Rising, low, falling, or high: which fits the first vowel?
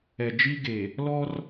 low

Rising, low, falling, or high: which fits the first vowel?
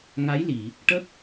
rising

